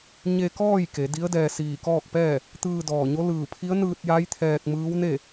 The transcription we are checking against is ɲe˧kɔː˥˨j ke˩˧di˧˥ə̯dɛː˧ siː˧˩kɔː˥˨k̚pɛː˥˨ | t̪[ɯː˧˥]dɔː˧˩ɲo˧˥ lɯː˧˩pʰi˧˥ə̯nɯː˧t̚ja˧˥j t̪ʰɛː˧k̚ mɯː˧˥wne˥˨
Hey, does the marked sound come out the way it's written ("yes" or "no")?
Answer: no